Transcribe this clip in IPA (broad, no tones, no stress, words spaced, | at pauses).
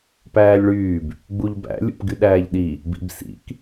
pæːlʲɭyːb | ɡ͡buʎbæ̰ lʲṵpɡyɗæːʎɗi | bḭbsḭk